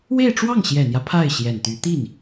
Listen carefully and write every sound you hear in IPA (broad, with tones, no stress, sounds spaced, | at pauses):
w e˥˧ ɪ̯ ʈ͡ʂ w ɑ˥˩ ŋ ɕ j ɛ˨˩ n̪ j ä˦ pʰ a˥˩ ɪ̯ ɕ j ɛ˨˩ n t̪ y˧˥ t̪ i˥˩ n